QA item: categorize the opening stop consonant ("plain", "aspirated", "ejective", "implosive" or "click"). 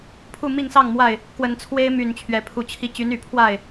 aspirated